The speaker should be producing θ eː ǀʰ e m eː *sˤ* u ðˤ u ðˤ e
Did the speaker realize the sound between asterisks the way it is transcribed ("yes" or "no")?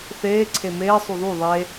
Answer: yes